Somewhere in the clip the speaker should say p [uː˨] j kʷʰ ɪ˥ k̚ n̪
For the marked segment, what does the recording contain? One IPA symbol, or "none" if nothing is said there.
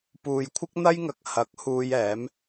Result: uː˨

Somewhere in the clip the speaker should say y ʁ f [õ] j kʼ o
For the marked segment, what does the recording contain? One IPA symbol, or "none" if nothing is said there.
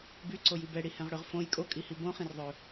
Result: õ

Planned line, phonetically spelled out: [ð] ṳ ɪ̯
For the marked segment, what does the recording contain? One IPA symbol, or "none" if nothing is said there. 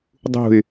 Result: dˤ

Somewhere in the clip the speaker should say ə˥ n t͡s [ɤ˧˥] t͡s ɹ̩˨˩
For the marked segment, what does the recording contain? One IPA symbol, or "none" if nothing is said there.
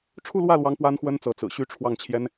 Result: ɤ˧˥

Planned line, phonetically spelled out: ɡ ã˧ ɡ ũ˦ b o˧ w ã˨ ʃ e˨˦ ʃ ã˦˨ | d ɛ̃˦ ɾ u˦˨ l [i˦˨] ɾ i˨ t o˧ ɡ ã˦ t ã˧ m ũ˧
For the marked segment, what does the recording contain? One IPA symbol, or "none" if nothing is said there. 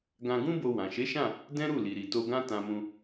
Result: i˨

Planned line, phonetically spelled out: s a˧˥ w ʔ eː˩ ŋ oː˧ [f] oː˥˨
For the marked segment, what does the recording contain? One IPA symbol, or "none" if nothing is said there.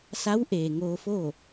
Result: f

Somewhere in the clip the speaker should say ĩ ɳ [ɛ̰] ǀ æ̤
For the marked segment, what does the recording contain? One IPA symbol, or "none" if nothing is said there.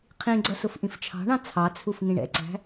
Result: ɛ̰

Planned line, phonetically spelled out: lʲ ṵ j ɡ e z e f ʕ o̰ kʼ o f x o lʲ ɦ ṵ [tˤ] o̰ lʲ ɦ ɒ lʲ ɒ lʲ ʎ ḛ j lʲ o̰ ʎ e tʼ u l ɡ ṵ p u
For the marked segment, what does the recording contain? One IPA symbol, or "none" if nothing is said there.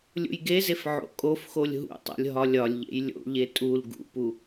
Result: tˤ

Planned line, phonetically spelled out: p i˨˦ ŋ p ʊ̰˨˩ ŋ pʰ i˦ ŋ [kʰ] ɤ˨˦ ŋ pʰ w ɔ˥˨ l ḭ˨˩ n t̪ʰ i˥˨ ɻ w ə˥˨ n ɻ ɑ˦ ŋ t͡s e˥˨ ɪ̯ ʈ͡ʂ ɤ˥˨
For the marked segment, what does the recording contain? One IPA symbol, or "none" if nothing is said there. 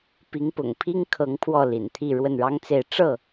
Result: kʰ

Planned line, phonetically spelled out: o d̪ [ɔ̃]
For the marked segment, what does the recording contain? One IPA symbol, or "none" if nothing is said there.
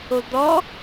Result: ɔ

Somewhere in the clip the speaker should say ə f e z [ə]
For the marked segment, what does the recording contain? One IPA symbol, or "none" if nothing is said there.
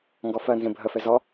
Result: ɔ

